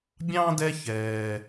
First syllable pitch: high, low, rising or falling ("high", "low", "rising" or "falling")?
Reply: high